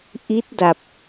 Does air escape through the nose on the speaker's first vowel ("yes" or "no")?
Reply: no